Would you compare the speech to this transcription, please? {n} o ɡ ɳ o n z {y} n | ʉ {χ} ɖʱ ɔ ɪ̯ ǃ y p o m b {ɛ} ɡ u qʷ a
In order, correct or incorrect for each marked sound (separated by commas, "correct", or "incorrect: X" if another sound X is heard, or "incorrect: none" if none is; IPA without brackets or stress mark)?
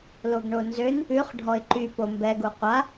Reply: incorrect: l, incorrect: ø, correct, correct